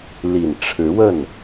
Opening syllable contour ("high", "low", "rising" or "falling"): low